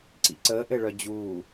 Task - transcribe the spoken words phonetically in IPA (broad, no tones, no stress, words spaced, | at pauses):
ǀḭǀəːʔɘɭœ d͡ʑuː